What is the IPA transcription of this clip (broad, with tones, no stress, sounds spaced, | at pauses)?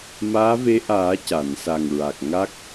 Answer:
m aː˧˥ v e˧˥ ʔ aː˨˩˦ c a˨˩˨ n s a˨˩ ŋ ɹ a˨˩ k̚ ŋ a˦˥ k̚